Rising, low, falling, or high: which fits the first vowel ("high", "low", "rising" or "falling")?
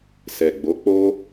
low